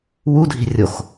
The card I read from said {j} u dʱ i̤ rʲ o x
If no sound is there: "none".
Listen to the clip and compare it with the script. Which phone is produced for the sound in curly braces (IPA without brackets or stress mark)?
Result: w